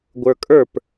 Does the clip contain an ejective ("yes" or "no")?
yes